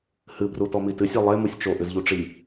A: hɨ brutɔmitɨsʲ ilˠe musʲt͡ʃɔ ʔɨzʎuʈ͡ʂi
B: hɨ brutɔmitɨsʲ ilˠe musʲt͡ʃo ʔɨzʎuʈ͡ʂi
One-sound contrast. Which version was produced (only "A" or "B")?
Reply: B